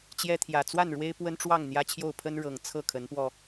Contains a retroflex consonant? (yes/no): yes